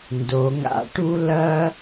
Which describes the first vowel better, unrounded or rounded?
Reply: rounded